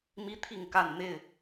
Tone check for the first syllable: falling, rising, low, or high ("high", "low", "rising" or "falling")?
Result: high